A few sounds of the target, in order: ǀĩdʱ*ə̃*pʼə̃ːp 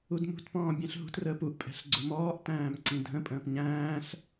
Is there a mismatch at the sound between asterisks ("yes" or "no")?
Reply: no